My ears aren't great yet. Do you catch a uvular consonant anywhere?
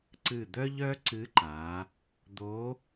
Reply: no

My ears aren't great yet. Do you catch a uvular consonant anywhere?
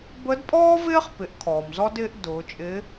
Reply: yes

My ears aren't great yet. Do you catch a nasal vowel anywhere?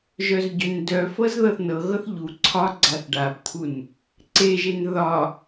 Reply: no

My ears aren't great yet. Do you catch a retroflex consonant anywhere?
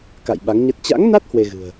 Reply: no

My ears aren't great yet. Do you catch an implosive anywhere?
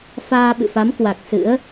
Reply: yes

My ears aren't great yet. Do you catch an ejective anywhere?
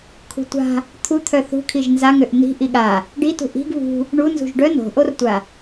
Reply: no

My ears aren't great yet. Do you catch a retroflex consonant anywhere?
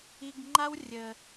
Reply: no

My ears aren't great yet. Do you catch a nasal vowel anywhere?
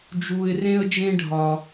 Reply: yes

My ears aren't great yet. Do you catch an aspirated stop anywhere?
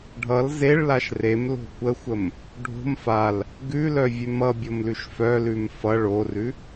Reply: no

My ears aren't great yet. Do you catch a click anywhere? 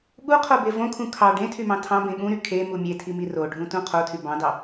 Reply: no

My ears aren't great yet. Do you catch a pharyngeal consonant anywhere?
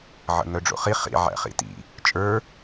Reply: yes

